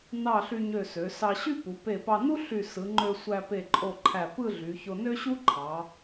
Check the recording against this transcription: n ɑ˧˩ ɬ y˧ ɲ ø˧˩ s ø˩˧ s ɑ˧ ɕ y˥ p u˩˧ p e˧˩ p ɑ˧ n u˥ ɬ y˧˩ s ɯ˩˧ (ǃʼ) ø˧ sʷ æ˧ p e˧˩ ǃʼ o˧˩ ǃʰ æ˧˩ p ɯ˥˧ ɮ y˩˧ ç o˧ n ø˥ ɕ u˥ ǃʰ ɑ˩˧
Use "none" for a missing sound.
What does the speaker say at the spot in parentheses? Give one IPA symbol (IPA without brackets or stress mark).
ŋ͡ǃ